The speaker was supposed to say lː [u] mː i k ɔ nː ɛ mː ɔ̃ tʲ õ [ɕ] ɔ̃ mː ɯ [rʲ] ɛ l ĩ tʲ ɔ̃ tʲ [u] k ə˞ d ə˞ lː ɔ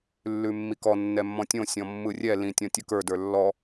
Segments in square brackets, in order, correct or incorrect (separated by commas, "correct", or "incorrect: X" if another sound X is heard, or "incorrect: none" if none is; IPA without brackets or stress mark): incorrect: ʉ, incorrect: sʲ, correct, incorrect: ɯ